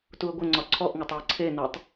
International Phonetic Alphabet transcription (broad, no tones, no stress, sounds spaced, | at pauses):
t u ə̯ ɡʷ ɘ ŋ͡ǀ ɒ ǀʰ ɔ ʔ ŋ ɒ tˤ w e ǀʰ e n o tˤ